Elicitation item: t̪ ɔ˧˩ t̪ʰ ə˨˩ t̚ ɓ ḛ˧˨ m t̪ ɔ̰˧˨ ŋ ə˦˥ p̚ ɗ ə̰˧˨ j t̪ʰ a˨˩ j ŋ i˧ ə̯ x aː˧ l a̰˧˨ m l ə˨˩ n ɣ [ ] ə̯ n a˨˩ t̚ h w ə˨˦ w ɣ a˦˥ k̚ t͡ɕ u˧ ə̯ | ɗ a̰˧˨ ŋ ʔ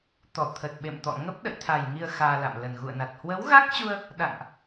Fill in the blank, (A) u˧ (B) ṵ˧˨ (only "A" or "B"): B